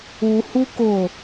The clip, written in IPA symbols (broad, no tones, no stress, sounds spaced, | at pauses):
u h u k ʊ